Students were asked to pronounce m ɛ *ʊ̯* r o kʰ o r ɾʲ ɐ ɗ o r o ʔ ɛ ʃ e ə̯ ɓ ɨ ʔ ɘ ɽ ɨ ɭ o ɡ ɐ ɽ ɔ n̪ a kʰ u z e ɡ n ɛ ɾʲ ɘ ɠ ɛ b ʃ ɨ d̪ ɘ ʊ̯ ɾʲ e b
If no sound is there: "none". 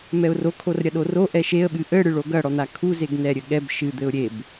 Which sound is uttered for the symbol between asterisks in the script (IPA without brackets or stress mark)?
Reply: ʊ̯